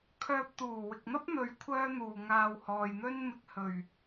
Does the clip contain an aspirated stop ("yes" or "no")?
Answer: yes